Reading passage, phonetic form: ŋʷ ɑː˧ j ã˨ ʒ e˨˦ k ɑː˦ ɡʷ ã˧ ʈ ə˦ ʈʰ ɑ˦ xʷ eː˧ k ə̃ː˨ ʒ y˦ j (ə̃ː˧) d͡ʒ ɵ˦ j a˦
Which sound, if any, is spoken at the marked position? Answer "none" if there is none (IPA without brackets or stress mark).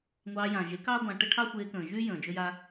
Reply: ə̃ː˨